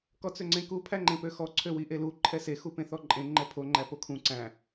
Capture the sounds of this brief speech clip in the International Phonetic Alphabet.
k ɔ t͡s ø ŋ͡ǀ ẽ k u pʰ æ ŋ͡ǃ ẽ p ø x ɔ ǀʰ ø w i ʔ e l u ǃʰ ɛ s e x u p ẽ θ ɔ ǃʼ ẽ ŋ͡ǃ ɛ pʰ o ŋ͡ǃ æ p o kʰ ũ ǀ æ̃

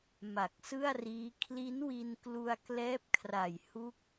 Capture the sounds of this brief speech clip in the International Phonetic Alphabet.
m a˨˩ k̚ s ɯ˥˩ a̯ r iː˦˥ kʰ l i˦˥ n w i˧ n k l u˧ a̯ k l ɛː˦˥ p̚ kʰ r a˨˩ j h u˦˥ k̚

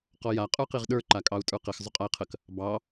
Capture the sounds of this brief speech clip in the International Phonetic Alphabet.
q ɔ j a qʼ ə˞ q i ʁ ɗ ə˞ ǃ a kʼ ɑ u̯ tʼ ə˞ q ɪ x zˤ ʏ qʼ a i̯ qʰ ə k | b ɑ

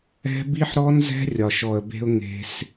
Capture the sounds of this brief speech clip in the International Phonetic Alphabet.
ɛ̤˦ b i˦ ħ ɾ ɔ˦ n z ɛ̤˦ rʲ ɒ˨ ʃ ɔ˨ ə̯ b e̤˧ ʊ̯ ŋ e̤˧ s

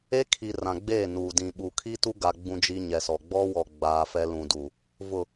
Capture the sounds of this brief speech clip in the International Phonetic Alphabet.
e˦ kʰ i˨ r ã˨ ɡ͡b eː˦˨ n uː˨ d ĩ˨ ɓ u˨ kʰ i˦ t u˦ ɡ a˨ ɡ͡b ũ˦ d͡ʒ i˦ ɲ ɛ˨ s ɔ˨ ɡ͡b ɔ˦ w ɔ˨ ɡ͡b aː˦ f ɛ˦ l ũ˨ d u˨ | v ʊ˨

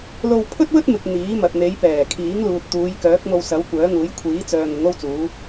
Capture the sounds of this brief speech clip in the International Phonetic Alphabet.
l o˧ w pʰ ɵ˥ t̚ w ɵ˥ t̚ m ɪ˨ k̚ n̪ iː˨˥ m ɐ˨ t̚ n̪ e˨˧ j p ɛː˨˩ kʰ iː˨˥ ŋ l uː˨ t̚ t̪ uː˨˧ j k œː˨˥ k̚ m o˧ w s ɐ˨˥ w kʷ œː˨˥ ŋ uː˨˥ j kʷʰ iː˨˥ t͡s œː˨ ŋ ʊ˨˥ ŋ o˥ w t͡s uː˨˥

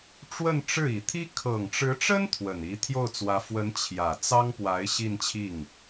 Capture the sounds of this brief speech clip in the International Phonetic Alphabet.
ʈ͡ʂ w ə˥˧ n ʈ͡ʂ ɻ̩˥˩ i˨˩ t̪ʰ i˥ kʰ ɤ˨˩ ŋ ʈ͡ʂ ɻ̩˧˥ ʈ͡ʂ ə˥ n t̪ʰ w ə˨˩ n i˧˥ t̪ʰ j o˥˩ ʊ̯ t͡s w ä˧˥ f w ə˧˥ n t͡ɕʰ j ä˨˩ t͡s ɑ˥ ŋ p w a˧˥ ɪ̯ ɕ i˥˧ n t͡ɕʰ i˥˩ ŋ

